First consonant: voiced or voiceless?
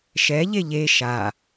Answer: voiceless